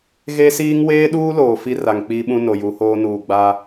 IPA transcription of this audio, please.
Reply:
ɣ e˦ s iː˦ ŋ w eː˦ ɗ uː˦ l oː˨ f i˦ r a˨ ŋ k͡p iː˦ ɓ ũ˦ n o˨ j u˨˦ h oː˦ n uː˨ ɡ͡b aː˦

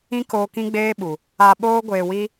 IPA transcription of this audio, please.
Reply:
ĩ˦ k oː˧ k ĩ˦ ɡ͡b eː˦ ɓ u˨ | a˧ ɓ oː˦ ɡʷ eː˧ w i˦

